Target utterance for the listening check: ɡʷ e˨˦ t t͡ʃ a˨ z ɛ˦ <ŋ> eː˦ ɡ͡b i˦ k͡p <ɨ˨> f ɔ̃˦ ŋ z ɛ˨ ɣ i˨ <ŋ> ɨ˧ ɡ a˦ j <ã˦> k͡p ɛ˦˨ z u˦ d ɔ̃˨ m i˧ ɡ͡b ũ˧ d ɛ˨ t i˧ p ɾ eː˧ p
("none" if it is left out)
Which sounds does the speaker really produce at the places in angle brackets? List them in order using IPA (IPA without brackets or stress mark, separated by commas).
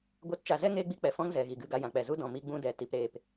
ŋ, ɛ˨, ɡ, ã˧